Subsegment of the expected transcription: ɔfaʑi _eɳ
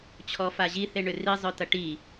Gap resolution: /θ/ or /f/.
θ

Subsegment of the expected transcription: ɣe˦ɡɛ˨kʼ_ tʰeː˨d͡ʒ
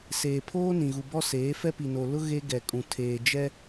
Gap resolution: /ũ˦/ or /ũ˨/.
ũ˨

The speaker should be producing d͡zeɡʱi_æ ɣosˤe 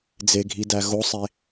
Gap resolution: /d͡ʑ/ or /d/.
d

